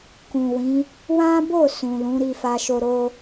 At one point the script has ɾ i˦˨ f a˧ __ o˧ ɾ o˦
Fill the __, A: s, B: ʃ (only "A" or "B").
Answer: B